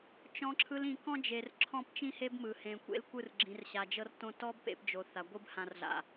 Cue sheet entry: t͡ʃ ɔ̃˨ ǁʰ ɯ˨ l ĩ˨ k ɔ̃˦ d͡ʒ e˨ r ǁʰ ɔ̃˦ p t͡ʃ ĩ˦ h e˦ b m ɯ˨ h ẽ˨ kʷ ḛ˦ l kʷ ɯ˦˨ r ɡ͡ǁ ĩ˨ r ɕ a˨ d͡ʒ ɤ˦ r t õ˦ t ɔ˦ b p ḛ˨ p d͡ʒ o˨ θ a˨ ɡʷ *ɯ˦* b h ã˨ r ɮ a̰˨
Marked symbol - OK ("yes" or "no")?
yes